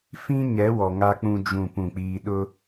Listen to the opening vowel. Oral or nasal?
nasal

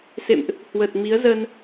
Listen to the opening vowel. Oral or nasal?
oral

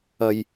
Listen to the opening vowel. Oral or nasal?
oral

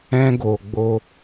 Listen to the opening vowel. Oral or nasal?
nasal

